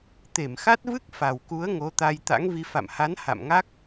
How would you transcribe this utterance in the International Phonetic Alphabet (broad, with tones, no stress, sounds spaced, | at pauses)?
t̪ e˧˩ m x a˦˥ t̚ v ɨ˦˥ k̚ f a˨˩ w k u˨˦ ə̯ ŋ o˨˦ t̪ a˧ j t̪ a̰˧˥ ŋ v i˧ f a̰˧˨ m h a˨˦ n h a̰˧˨ m ŋ a˦˥ k̚